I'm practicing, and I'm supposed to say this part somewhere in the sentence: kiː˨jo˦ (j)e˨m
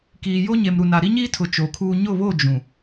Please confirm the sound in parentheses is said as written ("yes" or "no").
no